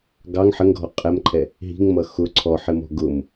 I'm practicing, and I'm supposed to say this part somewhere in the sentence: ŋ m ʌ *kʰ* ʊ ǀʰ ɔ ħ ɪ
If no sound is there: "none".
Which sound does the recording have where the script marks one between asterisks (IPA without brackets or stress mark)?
x